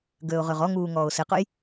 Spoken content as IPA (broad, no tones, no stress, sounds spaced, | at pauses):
ɡ øː ʊ̯ ʁ ø ʁ ɔ ŋ uː ŋ ɔː ʊ̯ s ɪ q ʊ j